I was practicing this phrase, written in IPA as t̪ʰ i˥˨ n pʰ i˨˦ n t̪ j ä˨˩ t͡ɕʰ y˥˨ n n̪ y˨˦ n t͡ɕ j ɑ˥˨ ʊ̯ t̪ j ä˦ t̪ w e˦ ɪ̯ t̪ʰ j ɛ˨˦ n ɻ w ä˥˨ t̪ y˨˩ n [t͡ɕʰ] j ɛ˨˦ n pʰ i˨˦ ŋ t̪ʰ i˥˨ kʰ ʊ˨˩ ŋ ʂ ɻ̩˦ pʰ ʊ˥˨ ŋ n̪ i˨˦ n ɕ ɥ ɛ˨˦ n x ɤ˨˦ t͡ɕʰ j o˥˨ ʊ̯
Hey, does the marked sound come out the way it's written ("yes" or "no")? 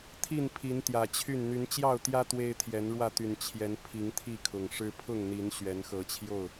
yes